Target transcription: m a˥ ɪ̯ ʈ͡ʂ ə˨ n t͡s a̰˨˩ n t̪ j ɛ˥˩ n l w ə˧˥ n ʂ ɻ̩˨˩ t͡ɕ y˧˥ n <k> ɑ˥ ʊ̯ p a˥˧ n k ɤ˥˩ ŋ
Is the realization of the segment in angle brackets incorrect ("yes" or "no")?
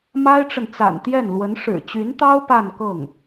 yes